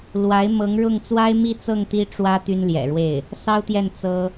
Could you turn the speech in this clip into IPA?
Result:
l w a˧˥ ɪ̯ m ɤ˧˥ ŋ ɻ ʊ˥˩ ŋ t͡s w a˥ ɪ̯ m i˥˧ t͡s ɤ˥˩ ŋ t̪ i˥ ʈ͡ʂ w ä˥ t̪ y˥ n l j ɛ̰˨˩ ɻ w e˥˩ ɪ̯ | s ɑ˥ ʊ̯ t̪ j ɛ˥˩ n t͡s ɤ˥

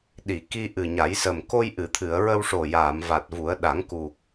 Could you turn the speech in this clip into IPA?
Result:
ɗ i˨˩˨ k i˧ ʔ ɨ˨˩ ɲ a˨˩˦ j s ə˨˩ m k o˧ j ʔ ɨ˨˩˨ t̪ʰ ɨ˨˩˨ ə̯ ɹ ə˧ w ʂ o˨˩ j aː˨˩˨ m v a˨˩ t̚ v u˨˩˦ ə̯ ɗ a˨˩˦ ŋ k u˨˩ k̚

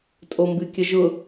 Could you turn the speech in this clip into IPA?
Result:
tʼ o m b ɨ kʲ ə ʒ ʊ

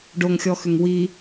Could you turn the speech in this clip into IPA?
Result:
ɖ o ŋ xʲ ɔ x ʏ ŋ w i

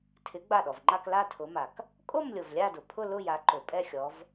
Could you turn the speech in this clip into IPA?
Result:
tʰ ɪ˨˦ ɡ͡b a˧˩ ɗ ɔ˩ v ŋ͡ǃ a˥˧ k l a˥˧ tʰ ʊ˨˦ m a˩ k | kʼ o˥˧ m lʲ o˩ v lʲ a˥˧ d ʊ˩ pʰ ʊ˥˧ l ʊ˥˧ j a˨˦ ǃ ʊ˩ pʼ ɛ˥˧ xʲ ɔ˨˦ v

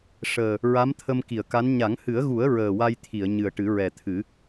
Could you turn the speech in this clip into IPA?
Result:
ʂ əː˨˩ | ɹ a˧˥ m t̪ʰ ə˧ m k i˨˩˨ ə̯ k a˧˥ n ɲ a˨˩˦ ŋ h ɨ˨˩˦ ə̯ ɣ u˨˩˦ ə̯ ɹ əː˨˩ w a˧ j t̪ʰ i˨˩˨ ə̯ ɲ ɨ˨˩ ə̯ ʈ ɨ˨˩˦ ɹ ɛ˨˩ t̪ʰ ɨ˨˩˦

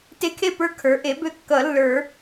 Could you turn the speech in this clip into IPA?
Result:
t e˧˥ kʰ e˦˨ p ə˞˧˥ kʰ ə˞˩˥ ʔ e˩˥ b ø˧˥ kː ʌ˨˩˦ lː ə˞˨˩˦

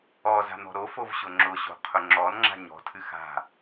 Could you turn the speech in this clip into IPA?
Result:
ɔ z a̤ n ɔ̤ ɾ o f o v ɕ ʊ ŋ͡ǁ ʊ ɕ o̤ qʰ ʊ ŋ͡ǁ ɔ n ŋ͡ǁ a̤ ɲ ɔ̤ tʰ ɨ x a̤

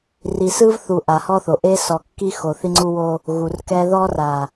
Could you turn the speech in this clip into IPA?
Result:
r i˨ s ɯ˦ v θ u˨ ʔ a˨ h ɔ˦ θ o˨ ʔ e˦ s ɔ˨ kː i˦ x o˨ θ i˦ ŋ͡ǀ u˦ w o˦ | ɣ u˨ r k ɛ˦ ð ɔ˦ r a˨

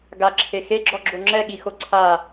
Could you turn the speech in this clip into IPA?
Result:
ɡ a ǁʰ e x e ɡ͡ǁ ɔ ɡ͡ǁ o ŋ͡ǁ ɛ ɠ i x o ǀʰ a

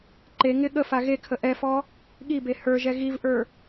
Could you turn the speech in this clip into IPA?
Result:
ǃ e ŋ ɪ ɠ ə f a ɣ e kʰ ə ʔ ɛ f ɔ | ɠ i b e h ə˞ ʒ ɛ ɣ i v ʔ ə˞

